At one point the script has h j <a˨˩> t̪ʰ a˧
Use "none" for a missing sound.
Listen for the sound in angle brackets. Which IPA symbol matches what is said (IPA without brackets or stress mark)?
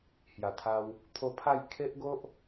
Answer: a˨˩